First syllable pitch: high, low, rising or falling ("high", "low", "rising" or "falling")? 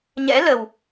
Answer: rising